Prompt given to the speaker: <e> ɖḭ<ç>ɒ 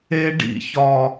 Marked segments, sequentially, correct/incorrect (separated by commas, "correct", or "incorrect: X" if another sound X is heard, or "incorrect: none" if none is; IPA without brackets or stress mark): correct, correct